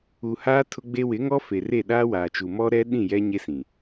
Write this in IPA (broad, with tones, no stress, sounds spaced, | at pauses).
u˨ h aː˦ tʰ ʊ˦ ɡ͡b e˦ w ɪ˨˦ ŋ ɔ˦ f e˨ r e˦˨ ɗ aː˦ w aː˨ t͡ʃ u˨ m ɔ˦ ɾ ɛ˦ ɗ ĩ˦˨ j ɛ˦ ɲ e˦ s ĩ˨